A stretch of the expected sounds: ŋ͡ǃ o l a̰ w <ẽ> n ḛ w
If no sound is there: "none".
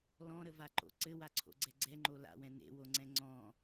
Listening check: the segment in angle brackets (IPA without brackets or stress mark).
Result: ɛ̃